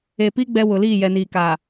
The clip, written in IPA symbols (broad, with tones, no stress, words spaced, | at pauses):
e˨pi˦ ɡ͡bɛ˦wʊ˨ liː˦˨jɛ˨niː˨ ka˨